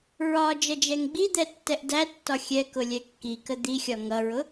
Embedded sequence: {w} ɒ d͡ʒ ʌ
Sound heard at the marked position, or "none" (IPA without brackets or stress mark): ɹ